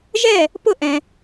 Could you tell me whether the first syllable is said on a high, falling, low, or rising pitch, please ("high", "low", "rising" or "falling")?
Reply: falling